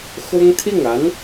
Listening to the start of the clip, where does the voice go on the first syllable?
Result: high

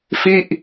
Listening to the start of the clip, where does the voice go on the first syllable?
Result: falling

